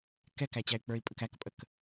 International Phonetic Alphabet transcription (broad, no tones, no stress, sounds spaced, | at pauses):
k ɛ k æ t͡ɕ æ y̯ k͡p ə˞ i̯ pʼ ə k æ k pʼ ə k